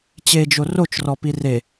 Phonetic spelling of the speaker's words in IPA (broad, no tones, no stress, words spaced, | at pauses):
t͡ɕed͡ʒo rot͡ʃrɔpi re